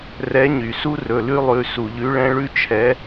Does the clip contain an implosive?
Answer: no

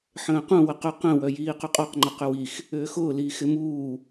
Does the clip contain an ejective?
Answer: yes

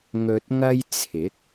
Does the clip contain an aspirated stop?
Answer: yes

